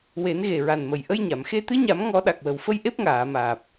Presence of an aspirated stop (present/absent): absent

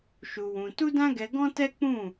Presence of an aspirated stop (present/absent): absent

